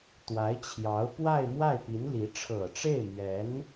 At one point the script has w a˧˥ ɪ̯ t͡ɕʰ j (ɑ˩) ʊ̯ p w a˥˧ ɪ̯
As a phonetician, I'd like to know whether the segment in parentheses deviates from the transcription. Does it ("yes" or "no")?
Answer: yes